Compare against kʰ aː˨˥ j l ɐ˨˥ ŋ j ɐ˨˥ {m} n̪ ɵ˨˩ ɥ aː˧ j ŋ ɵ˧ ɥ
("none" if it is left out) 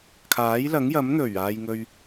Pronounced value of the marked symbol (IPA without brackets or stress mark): m